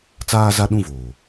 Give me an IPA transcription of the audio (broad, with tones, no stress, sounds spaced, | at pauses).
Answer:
t͡s aː˦ z a˦ ɗ ũ˦˨ v oː˨